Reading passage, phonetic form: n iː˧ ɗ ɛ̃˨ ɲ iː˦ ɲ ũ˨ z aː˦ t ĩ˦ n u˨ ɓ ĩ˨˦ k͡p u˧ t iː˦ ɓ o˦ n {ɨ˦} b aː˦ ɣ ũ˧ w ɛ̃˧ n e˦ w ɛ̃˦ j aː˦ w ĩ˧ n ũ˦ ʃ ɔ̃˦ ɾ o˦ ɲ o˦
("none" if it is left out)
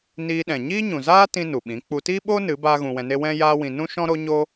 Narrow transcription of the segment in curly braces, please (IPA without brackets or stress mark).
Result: ɨ˨˦